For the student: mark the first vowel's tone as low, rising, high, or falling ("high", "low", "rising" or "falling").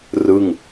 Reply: falling